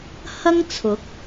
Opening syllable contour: high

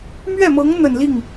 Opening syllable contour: falling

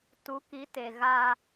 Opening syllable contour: rising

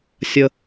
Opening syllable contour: high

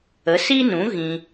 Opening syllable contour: rising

